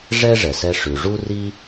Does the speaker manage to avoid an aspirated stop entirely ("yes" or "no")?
yes